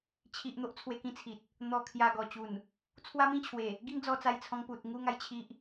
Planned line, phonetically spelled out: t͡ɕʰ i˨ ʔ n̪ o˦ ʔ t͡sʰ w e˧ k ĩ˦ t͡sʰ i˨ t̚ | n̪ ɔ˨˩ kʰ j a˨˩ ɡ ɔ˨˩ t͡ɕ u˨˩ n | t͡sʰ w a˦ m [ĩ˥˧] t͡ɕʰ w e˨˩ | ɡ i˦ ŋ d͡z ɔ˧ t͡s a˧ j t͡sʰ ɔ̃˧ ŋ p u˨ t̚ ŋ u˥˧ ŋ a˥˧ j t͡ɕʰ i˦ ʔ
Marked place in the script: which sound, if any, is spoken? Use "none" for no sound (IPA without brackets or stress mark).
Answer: ĩ˥˧